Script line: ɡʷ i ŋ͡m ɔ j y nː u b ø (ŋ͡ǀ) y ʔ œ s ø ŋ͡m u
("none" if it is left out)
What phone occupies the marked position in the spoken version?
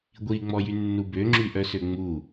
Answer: ŋ͡ǁ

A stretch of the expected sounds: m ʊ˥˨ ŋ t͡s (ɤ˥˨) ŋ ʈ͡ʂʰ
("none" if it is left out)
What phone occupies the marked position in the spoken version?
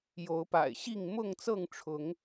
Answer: ɤ˥˨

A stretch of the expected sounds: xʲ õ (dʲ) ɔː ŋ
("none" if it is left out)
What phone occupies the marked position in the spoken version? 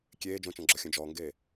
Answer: d͡ʒ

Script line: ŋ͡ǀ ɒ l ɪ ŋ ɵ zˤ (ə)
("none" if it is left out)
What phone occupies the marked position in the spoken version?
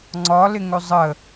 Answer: ə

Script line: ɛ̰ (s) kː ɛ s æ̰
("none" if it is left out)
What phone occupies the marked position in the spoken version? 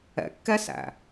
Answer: none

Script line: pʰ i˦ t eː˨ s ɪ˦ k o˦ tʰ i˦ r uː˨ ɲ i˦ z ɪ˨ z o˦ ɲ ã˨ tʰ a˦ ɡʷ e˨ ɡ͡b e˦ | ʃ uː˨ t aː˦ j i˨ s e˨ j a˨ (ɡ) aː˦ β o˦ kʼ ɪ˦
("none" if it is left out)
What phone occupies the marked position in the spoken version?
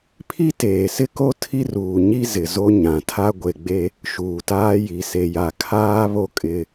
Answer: kʰ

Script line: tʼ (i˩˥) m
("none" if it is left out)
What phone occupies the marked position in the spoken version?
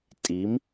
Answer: i˩˥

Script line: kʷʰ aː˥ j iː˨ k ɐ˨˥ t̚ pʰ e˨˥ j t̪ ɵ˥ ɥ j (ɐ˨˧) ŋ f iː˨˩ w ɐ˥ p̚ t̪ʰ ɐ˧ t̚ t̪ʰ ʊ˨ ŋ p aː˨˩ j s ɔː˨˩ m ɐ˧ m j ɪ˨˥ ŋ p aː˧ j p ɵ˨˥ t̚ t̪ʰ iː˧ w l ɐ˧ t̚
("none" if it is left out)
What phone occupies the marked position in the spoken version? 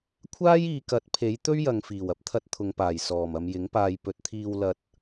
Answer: ɐ˨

